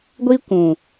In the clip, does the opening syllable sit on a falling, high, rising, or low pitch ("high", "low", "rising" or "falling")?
high